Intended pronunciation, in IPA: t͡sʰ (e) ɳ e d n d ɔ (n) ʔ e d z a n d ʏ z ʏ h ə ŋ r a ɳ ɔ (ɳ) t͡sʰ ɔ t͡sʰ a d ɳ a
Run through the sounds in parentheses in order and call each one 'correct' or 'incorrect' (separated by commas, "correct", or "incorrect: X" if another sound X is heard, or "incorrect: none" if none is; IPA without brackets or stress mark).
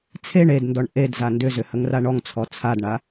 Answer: correct, incorrect: ɳ, incorrect: ŋ